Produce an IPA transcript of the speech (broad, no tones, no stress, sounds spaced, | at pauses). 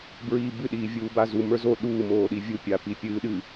b ɹ iː b ɨ ɗ iː vʲ uː b a z u m ə˞ z o ɗ uː m oː ɗ i vʲ u pʲ a p i pʲ ɨː ɗ ɨ